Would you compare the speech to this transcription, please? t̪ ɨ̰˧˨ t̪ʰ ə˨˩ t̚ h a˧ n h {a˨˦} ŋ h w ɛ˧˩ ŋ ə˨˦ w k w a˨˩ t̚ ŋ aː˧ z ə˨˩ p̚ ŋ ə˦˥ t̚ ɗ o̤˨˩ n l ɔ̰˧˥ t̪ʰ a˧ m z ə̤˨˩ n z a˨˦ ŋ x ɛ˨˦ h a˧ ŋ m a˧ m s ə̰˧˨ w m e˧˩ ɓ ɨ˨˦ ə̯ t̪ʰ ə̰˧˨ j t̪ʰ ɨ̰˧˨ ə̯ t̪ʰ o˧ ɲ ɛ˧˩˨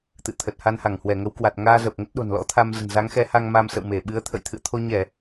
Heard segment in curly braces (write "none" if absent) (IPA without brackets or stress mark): a˧˩